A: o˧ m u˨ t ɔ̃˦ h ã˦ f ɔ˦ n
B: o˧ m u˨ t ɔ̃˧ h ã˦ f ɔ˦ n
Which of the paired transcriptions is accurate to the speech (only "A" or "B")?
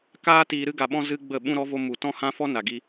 A